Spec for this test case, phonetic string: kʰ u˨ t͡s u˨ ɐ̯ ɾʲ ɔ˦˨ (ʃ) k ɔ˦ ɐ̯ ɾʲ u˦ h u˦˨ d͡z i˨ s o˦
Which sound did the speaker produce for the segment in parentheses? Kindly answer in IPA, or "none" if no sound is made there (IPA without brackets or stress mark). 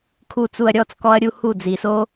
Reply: t͡s